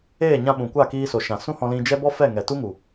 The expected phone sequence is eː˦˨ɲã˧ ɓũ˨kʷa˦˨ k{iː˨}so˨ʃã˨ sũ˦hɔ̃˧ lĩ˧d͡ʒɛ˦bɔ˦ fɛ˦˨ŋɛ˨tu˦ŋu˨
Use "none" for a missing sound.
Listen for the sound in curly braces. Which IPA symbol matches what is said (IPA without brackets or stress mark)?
iː˧